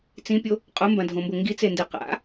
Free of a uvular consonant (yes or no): no